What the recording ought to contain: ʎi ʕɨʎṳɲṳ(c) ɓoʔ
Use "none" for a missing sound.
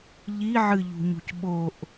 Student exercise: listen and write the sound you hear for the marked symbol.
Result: c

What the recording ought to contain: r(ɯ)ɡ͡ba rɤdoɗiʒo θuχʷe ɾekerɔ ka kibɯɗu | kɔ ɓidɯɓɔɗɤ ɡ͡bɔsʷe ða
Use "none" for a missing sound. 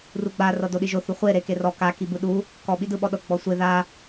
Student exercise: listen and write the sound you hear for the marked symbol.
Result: u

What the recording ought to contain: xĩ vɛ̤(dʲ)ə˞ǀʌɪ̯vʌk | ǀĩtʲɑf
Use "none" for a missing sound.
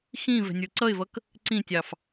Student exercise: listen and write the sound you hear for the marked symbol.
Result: nʲ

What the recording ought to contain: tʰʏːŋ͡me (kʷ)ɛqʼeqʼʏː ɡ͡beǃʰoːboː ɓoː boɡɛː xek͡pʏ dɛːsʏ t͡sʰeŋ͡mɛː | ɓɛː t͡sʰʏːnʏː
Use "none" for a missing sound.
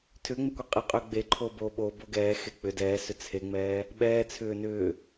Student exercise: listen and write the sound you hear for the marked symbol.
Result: kʷ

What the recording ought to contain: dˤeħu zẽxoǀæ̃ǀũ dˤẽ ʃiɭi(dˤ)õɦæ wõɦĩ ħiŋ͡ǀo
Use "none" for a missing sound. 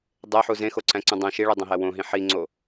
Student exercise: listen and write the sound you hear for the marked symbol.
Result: dˤ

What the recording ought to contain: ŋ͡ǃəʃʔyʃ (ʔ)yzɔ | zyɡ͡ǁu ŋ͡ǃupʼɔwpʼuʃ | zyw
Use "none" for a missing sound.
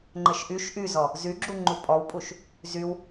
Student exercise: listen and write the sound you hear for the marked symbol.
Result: ʔ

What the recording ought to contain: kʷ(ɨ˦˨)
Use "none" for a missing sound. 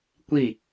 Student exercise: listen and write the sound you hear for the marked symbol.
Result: i˦˨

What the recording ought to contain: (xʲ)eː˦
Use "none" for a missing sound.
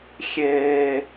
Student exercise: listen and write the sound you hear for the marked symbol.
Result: xʲ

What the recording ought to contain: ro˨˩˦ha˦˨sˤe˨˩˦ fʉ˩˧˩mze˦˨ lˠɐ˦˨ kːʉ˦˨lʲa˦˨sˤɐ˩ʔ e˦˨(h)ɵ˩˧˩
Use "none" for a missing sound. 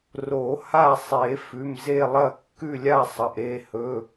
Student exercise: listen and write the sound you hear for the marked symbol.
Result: h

